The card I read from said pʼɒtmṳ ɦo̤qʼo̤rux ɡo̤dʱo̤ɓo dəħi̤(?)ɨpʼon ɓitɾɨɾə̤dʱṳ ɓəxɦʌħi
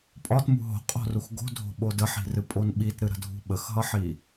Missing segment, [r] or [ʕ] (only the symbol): r